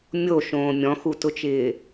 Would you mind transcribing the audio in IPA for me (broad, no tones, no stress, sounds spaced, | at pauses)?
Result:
mʲ o ʃ õː mʲ ɔ̃ x u t ʊ t͡ʃ ɪː